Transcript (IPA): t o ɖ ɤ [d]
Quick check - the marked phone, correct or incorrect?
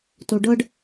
incorrect